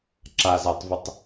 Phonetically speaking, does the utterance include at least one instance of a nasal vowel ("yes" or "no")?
no